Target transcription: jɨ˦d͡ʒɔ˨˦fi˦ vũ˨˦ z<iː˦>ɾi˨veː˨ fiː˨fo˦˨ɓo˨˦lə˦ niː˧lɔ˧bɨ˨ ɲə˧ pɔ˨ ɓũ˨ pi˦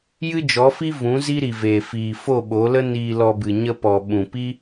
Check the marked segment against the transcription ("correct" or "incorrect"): incorrect